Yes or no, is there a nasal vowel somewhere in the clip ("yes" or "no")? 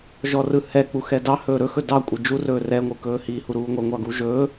no